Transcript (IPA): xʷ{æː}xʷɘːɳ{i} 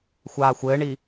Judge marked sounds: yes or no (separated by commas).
no, yes